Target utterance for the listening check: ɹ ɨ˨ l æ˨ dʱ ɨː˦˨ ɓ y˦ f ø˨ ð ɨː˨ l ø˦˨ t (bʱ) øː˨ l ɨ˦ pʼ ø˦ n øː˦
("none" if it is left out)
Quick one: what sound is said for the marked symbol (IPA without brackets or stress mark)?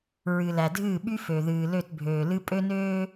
bʱ